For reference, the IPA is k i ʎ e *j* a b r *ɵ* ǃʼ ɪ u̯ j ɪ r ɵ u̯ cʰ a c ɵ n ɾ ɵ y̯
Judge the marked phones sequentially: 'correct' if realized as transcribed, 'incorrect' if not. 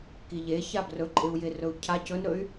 incorrect: ç, correct

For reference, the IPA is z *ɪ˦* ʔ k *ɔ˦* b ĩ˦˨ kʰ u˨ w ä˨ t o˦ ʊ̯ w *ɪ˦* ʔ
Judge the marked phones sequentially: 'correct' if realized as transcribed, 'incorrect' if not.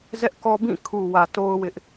incorrect: ɛ˦, correct, correct

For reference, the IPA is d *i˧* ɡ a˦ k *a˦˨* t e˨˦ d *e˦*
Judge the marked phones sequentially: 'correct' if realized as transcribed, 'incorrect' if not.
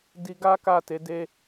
correct, correct, correct

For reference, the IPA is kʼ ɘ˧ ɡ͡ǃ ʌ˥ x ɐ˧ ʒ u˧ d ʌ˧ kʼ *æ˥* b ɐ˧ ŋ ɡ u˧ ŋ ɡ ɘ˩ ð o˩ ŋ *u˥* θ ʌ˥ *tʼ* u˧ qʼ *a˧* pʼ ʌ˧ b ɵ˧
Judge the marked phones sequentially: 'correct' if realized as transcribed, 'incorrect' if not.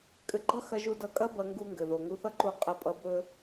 incorrect: ɐ˥, incorrect: u˧, incorrect: ǃ, incorrect: ɐ˧

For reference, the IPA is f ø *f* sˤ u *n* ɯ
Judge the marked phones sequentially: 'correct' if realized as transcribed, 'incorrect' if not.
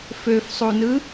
correct, correct

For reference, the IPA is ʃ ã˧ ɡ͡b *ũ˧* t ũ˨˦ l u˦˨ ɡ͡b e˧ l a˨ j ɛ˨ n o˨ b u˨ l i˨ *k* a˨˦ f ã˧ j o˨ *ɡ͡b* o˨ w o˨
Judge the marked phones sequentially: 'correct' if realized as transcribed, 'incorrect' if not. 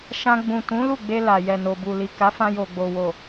incorrect: ũ˨, correct, correct

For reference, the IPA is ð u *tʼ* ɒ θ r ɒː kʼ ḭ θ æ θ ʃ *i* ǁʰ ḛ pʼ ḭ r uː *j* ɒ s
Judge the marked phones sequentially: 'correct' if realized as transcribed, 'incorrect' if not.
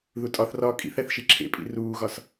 correct, correct, incorrect: ɣ

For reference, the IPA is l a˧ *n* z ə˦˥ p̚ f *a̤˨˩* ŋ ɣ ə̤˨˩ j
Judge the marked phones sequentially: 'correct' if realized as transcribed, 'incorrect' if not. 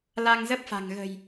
incorrect: ŋ, correct

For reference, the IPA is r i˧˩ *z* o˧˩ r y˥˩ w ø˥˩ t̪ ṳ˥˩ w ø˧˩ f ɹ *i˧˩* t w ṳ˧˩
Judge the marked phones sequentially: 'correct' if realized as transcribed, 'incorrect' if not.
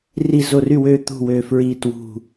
correct, correct

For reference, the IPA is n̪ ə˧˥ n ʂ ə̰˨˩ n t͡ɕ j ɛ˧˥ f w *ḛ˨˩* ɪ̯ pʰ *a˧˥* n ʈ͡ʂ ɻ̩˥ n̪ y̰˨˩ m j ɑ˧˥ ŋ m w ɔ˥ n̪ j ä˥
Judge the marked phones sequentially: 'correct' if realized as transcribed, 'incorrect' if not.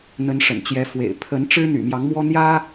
correct, incorrect: ə˧˥

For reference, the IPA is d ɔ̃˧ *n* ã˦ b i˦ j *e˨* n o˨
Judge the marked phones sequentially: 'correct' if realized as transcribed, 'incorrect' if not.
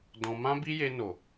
incorrect: m, incorrect: e˧

